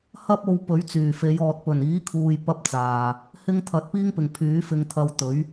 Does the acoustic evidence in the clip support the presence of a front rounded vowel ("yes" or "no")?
yes